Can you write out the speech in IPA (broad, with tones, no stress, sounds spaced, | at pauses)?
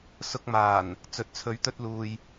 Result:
s ʊ˧ k̚ m aː˨˩ n | t͡s ɵ˨˥ t̚ t͡sʰ ɵ˨˥ ɥ t̪ ɵ˧ t̚ l uː˨ j